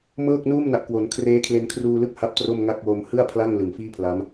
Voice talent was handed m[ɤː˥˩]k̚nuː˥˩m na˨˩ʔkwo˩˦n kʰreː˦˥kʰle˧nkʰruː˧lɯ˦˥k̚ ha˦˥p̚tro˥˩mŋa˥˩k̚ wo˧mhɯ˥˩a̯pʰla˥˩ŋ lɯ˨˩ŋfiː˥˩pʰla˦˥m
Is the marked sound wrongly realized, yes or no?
no